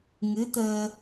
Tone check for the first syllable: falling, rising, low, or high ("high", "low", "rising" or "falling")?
rising